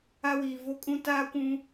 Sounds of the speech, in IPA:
a˦ w iː˨ v o˦ kʼ ũ˦ t aː˦ kʷ ũ˦

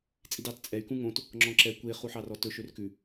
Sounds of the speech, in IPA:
t͡sʼ i d ɑ t t͡sʼ ɛ y̯ k ũ ŋ õ t | ŋ͡ǁ ɔ̃ ǁ ɛ kʷ e χ u ħ ɑ r ɔ t ɵ ʃ ø r k ʉ

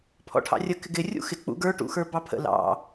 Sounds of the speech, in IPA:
pʰ ɔ̰ ʈʰ ɑ̰ rʲ ə k ɪ ɡ ɪ rʲ ṵ x ɪ k͡p ṵ ɡ ə˞ ʈ ṵ x ə˞ b ɑ pʰ ə̰ l ɑ̰

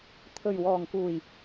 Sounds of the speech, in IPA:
t̪ʰ ɵ˨˩ ɥ w ɔː˨˩ ŋ k uː˨˩ j

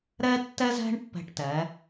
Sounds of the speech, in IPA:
ɾ ɛ˥ tː ɛ˥ z ɛ̤˥ ɳ pː ɛ̤˧ ʈ t ɛ˩˧

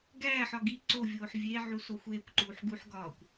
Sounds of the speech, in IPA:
ɡ æː ħ ɒ ɡ i ǀ o vʲ oː ħ vʲ e ʕ u s o xʷ eː kʷ ǃ uː ħ ɡ u ħ ɡ ɒː kʷ

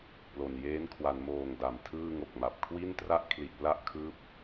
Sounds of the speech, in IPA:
p l o˨˩ n j eː˦˥ n kʰ w a˩˦ n m oː˨˩ ŋ d a˩˦ m tʰ ɯː˥˩ ŋ o˨˩ k̚ m a˨˩ p̚ kʰ w i˥˩ n t r a˥˩ ʔ kʰ l i˨˩ ʔ p l a˥˩ ʔ kʰ ɯː˦˥ p̚

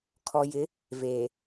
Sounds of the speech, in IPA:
kʰ ɔ˨ j ɪ˨˦ | v eː˨

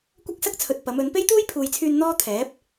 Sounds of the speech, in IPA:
kʷ ɐ˥ k̚ s ɐ˥ k̚ t͡sʰ ɵ˨ t̚ p ɐ˨˥ m ɵ˨˥ n p e˥ j t̪ uː˥ j pʰ uː˨ j t͡sʰ yː˧ n n̪ ɔː˥ t̪ʰ ɛː˨˥ p̚

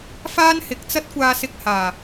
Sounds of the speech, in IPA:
f aː˥ n h ɪ˨˥ k̚ t͡s ɐ˥ t̚ kʷ aː˧ s ɪ˧ k̚ h aː˨˩

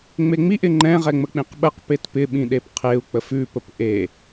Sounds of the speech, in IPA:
ŋ͡m e ŋ͡m i ʔ ɪ ŋ͡ǃ ɛ̃ ʁ ɛ ŋ͡m ə k͡p ĩ q ɓ ə q p e t p ɪ ɓ ĩ ɗ e p qʰ e u̯ k͡p ə f ʉ p ə p ʔ e

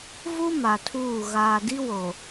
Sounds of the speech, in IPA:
v u˦ m a˨ tʰ uː˦˨ ɣ aː˨ d i˦ w o˨

